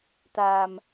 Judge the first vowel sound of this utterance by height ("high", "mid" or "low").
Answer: low